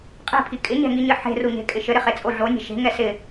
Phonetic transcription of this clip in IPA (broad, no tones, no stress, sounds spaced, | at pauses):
qʼ e̤ pʰ i kʼ ɪ ɲ ɛ̤ ŋ i ɲ ɘ ħ e̤ r u ɲ e̤ kʼ ɪ ʃ ɘ ɾ ɪ χ e t͡sʼ o ɮ o nʲ ɛ̤ ʃ e̤ ŋ ɛ s ɪ